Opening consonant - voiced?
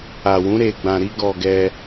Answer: yes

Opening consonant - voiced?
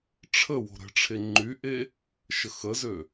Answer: no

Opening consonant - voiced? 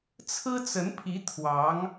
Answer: no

